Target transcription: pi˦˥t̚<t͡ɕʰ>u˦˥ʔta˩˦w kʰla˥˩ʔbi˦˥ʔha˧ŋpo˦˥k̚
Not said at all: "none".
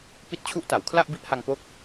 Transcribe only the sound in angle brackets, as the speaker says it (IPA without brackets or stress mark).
t͡ɕʰ